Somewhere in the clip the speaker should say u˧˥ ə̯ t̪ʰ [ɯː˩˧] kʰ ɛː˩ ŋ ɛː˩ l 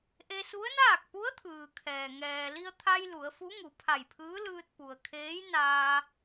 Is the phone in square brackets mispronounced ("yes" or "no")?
yes